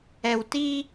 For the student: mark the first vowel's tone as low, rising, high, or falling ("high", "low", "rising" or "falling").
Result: low